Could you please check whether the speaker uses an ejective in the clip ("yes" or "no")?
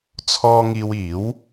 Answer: no